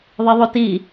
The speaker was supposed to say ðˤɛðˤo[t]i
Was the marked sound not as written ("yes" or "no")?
no